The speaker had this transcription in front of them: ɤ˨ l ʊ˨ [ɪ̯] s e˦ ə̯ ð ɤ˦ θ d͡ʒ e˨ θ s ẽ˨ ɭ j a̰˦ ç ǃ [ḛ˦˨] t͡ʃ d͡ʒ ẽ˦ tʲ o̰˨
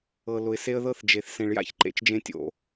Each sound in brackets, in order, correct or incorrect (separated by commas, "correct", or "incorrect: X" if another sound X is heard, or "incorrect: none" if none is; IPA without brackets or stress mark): correct, incorrect: ḛ˨